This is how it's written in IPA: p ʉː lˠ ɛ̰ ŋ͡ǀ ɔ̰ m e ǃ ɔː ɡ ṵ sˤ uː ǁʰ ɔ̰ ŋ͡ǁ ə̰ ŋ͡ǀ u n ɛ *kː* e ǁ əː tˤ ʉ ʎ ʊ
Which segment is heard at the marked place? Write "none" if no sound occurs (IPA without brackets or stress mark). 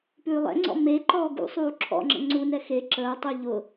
x